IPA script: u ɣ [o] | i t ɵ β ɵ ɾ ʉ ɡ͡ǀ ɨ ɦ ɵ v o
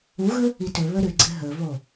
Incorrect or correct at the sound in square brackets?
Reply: incorrect: ɵ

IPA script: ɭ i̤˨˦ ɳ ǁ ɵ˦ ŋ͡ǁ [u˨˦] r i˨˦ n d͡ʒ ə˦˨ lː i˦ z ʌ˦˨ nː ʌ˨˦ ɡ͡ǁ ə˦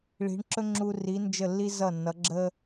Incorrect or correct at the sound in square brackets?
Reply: incorrect: u˧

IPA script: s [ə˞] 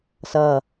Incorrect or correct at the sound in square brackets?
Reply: incorrect: ʌ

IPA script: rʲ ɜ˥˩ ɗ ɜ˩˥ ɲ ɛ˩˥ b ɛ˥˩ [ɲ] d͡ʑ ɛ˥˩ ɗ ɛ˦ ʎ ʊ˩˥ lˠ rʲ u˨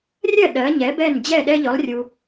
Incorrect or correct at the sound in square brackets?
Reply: incorrect: n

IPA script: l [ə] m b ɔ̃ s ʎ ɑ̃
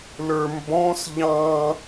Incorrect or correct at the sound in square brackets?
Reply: incorrect: ə˞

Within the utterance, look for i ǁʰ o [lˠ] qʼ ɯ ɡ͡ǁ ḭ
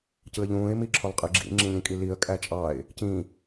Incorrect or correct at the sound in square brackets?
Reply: correct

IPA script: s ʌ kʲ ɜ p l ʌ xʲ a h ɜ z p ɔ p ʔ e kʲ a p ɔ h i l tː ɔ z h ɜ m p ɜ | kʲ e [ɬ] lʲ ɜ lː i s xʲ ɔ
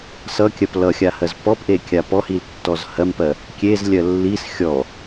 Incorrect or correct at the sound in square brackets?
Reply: incorrect: z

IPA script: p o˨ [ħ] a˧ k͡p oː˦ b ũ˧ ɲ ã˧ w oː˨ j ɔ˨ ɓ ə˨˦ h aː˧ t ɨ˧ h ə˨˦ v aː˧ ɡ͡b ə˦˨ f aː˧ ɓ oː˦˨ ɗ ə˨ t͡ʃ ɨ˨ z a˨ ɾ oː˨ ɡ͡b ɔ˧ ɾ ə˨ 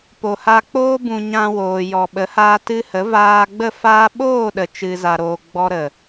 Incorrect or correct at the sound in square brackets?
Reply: incorrect: h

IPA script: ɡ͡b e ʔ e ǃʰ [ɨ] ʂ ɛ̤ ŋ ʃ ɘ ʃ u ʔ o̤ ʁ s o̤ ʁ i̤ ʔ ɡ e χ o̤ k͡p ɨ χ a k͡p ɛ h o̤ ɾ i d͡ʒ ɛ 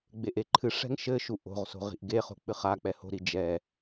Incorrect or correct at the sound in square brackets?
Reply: correct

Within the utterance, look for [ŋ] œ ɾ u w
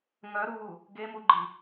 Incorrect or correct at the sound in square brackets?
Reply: correct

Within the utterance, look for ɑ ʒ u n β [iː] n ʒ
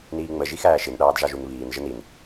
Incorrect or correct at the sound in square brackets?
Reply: correct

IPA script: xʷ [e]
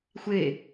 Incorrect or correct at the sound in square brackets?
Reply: correct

